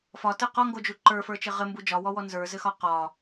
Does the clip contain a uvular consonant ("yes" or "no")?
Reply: yes